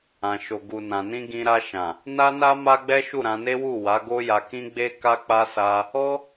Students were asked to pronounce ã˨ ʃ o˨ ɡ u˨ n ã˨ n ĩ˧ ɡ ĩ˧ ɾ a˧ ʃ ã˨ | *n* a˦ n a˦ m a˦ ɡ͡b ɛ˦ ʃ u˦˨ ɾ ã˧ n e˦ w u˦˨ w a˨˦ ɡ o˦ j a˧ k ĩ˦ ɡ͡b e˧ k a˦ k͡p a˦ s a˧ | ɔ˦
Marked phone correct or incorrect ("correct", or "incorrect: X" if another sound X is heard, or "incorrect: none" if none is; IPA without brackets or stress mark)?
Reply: correct